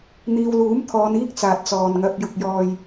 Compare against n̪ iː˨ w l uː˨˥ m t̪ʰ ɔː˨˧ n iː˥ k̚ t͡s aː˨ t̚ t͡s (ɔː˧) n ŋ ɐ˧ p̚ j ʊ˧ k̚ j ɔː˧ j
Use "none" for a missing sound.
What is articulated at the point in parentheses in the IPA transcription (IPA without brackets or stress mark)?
ɔː˨